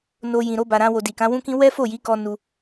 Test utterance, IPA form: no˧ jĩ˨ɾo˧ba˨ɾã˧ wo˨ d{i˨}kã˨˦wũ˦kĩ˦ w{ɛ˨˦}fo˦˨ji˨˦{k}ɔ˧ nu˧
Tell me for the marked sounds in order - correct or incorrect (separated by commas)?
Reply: correct, incorrect, correct